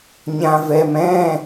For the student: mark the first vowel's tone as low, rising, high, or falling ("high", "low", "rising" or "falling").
low